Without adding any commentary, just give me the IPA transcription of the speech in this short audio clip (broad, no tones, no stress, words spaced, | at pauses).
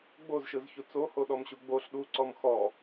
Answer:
ɡ͡bozʃɯzçu t͡sohoɗɔmɕu ɡ͡boɬ ɗuǀɔm xɔ